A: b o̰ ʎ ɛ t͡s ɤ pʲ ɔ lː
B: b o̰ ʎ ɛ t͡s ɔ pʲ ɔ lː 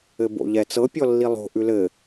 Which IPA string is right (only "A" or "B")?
A